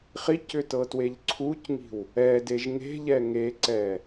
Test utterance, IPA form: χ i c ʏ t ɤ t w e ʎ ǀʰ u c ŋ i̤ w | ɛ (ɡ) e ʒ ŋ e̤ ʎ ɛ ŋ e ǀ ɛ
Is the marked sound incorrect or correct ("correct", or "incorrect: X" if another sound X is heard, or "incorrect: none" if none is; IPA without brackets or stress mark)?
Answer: incorrect: d